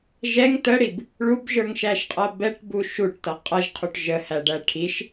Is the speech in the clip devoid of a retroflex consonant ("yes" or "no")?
no